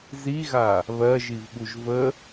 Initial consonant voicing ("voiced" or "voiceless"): voiced